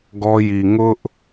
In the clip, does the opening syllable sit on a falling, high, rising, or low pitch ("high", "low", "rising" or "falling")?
high